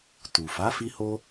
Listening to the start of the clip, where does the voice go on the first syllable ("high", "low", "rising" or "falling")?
low